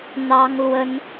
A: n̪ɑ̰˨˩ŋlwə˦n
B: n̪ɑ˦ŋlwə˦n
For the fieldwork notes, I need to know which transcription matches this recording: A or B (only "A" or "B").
B